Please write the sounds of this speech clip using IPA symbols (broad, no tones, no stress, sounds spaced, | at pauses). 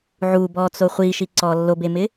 ʕ u b ɔ t͡s o χʷ i ʃ i ǀ ɔ lː o b e m ɪ